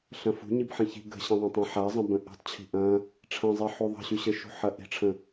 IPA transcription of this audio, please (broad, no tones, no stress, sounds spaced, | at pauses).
ɬ ɐ̃ f ṳ ɲ i b ħ ɐ̃ ç i̤ ɡ ə̤ ɕ ɐ̃ ðˤ ɐ̃ tˤ ɐ̃ ħ a zˤ ə̃ b ə̃ ʔ i̤ tˤ t͡ɕʰ i̤ ʔ ɐ̃ | ʈ͡ʂʰ ɐ̃ zˤ i ħ u ðˤ ə̤ ɕ y ɕ ə ʃ ṳ ħ ɐ ʔ i̤ ʈ͡ʂʰ ə̃